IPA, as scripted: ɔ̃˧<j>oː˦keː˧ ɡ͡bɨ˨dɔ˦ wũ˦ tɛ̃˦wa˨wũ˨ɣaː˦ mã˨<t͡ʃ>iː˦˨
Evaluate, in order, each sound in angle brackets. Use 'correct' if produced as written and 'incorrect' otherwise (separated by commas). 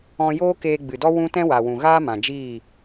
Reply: correct, incorrect